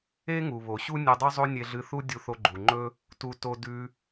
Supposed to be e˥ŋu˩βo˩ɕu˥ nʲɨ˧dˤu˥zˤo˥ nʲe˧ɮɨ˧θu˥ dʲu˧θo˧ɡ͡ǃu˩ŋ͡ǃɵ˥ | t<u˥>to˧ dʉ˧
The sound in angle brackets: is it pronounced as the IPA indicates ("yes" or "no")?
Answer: no